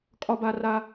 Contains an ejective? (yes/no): yes